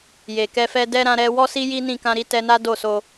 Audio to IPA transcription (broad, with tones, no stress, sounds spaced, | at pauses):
j e˨ k ɛ˧ f ɛ˧ d ɛ˦ ɾ ã˧ ɾ ɛ˧ w ɔ˦ s i˦ j i˦ n ĩ˦˨ k ã˧ ɾ i˦ t ɛ˧ n a˦ d o˦˨ s o˧